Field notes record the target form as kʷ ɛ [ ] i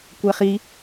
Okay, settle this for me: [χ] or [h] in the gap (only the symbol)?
χ